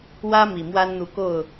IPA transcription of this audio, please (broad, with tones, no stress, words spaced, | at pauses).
wä˥ mi˨˩mwa˥n n̪u˧˥ko˥˩ʊ̯